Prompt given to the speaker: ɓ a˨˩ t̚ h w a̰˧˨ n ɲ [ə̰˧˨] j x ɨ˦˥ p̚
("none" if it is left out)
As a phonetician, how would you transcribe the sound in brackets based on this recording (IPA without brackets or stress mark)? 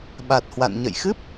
ə̰˧˨